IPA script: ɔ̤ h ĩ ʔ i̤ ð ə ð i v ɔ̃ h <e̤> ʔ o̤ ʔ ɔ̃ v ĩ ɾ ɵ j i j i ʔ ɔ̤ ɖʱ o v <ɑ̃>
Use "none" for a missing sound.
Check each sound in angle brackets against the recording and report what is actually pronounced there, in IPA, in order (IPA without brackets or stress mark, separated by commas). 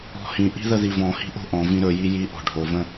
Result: i̤, ə̃